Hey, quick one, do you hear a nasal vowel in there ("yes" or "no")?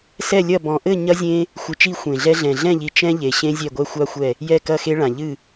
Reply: yes